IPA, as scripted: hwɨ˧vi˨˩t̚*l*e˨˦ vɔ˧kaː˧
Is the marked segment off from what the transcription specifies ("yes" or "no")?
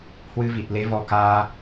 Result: no